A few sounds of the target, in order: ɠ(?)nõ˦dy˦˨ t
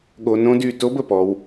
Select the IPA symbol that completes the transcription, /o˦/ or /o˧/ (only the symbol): o˧